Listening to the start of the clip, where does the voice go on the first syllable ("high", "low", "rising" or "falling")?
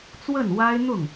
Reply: falling